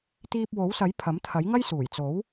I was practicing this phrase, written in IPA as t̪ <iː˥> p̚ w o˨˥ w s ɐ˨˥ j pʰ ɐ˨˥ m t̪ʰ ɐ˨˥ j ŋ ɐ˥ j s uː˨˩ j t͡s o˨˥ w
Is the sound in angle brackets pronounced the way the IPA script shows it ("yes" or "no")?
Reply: no